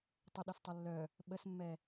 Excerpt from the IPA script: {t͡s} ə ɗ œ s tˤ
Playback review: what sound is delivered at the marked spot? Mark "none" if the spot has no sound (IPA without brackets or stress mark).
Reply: tˤ